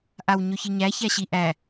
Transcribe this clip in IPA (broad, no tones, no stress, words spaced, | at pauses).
ʔawɲɵçiɲæ çæɕiʔæ